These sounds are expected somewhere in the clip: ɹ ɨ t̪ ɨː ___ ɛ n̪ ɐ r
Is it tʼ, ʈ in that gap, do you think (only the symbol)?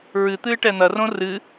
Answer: ʈ